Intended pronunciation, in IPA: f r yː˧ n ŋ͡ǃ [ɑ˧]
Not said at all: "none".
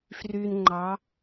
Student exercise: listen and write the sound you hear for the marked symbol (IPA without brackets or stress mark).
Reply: ɑ˧˥